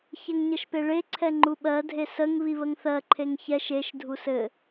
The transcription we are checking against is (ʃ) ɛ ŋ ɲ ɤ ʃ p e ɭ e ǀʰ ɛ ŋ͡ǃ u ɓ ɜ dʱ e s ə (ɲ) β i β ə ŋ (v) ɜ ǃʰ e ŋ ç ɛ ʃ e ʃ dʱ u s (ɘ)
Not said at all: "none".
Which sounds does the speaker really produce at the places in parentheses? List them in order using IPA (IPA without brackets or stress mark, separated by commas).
ç, ŋ, θ, ɘ